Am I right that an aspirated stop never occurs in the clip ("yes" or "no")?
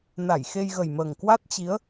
yes